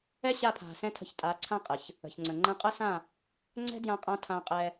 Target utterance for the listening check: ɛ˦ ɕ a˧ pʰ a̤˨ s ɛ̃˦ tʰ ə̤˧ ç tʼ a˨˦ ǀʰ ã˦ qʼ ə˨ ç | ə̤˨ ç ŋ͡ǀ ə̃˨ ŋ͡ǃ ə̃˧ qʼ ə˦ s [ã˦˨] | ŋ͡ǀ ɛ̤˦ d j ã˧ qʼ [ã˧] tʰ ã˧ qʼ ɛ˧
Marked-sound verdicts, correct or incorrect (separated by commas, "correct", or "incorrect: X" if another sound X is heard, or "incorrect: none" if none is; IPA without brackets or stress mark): correct, correct